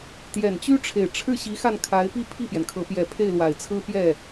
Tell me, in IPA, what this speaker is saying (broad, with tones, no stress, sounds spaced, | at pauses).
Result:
t̪ j ɛ˨˩ n t͡ɕ y˥ ʈ͡ʂʰ e˨˩ ɪ̯ ʈ͡ʂʰ ɻ̩˥˩ ɕ i˧˥ x a˥˩ n kʰ a˧˥ ɪ̯ p i˥˧ pʰ i˥˩ p j ɛ˩ n kʰ ɤ˧˥ p j ɛ˧˥ pʰ e˥˩ ɪ̯ l w a˨˩ ɪ̯ t͡sʰ ɹ̩˥ p j ɛ˥˩